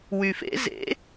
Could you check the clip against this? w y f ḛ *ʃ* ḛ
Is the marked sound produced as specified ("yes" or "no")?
no